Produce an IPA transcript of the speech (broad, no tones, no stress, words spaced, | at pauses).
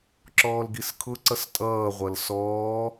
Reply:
ǁɔːlɡiskʰʊ ǀʌstʼʌːʁʷʌl sɔː